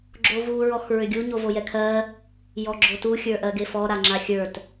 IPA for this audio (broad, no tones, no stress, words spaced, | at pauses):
ɡ͡ǁovu ɹɔxɹʏɡʲu ɲovojɛkʰɜ | jɔɡ͡ǁotu xʲə˞ʔɜɡefɔ ɾaŋ͡ǁaxʲə˞t